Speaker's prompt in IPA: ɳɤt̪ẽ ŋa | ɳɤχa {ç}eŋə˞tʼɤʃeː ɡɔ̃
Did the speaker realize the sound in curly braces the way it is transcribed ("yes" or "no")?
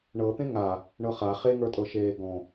no